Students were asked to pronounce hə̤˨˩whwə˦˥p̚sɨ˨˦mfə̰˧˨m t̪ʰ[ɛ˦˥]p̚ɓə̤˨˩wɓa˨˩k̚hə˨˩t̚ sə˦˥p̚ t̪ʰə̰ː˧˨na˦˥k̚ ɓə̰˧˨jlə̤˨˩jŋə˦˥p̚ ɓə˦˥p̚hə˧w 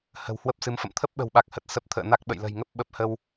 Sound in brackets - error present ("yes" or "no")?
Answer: yes